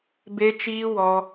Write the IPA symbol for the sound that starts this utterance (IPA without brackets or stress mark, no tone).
b